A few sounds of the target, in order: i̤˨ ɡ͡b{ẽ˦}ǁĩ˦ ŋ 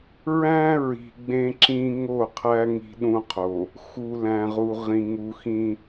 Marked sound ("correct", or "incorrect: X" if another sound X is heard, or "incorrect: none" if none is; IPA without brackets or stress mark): correct